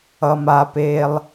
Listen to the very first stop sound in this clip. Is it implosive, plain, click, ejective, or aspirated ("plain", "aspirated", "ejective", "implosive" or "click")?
plain